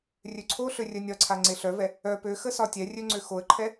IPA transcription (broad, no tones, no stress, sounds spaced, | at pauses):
rʲ ø ǀʰ o ɬ ø rʲ œ nʲ ɒ ǀʰ a ŋ͡ǀ e ɬ œ v ɛ | œ p ø x ə s ɒ tʲ ɛ rʲ ø ŋ͡ǀ ø x o ə̯ ǃʰ ɛ